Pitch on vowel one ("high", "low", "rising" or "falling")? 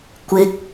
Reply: rising